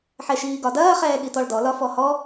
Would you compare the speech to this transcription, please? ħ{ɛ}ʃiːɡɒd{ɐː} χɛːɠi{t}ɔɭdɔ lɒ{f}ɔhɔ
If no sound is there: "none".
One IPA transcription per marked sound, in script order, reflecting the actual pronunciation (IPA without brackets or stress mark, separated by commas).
ɛ, ɐː, t, f